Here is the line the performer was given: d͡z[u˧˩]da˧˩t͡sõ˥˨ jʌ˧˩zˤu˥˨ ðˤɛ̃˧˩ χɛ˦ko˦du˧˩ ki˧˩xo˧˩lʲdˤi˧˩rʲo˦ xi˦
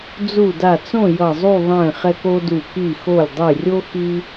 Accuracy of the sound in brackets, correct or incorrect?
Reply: correct